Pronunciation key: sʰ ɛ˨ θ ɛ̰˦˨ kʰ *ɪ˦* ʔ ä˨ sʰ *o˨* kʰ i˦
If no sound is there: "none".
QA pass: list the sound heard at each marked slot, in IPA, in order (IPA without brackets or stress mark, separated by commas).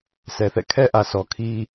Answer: ɛ˦, ɔ˨